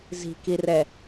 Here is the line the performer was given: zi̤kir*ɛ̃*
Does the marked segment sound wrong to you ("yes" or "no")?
yes